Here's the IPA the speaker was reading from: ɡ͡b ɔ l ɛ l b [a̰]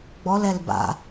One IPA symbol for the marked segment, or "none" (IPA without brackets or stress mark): a̰